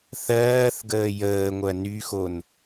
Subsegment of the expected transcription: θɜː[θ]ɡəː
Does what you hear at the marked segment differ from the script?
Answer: no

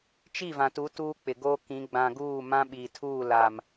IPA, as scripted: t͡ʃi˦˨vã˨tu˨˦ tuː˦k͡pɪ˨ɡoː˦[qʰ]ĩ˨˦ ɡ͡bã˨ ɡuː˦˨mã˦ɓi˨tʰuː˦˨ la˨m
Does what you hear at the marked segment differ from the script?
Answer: yes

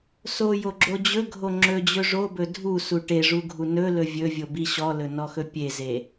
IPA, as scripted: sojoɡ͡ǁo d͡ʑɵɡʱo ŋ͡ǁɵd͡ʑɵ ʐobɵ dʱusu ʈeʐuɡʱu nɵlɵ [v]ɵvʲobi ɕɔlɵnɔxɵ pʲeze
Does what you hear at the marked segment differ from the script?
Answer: yes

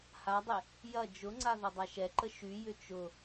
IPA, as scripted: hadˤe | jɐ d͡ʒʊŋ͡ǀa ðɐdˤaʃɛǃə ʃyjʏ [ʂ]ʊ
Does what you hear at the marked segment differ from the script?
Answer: yes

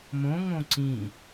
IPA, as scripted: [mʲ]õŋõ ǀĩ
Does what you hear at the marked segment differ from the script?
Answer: yes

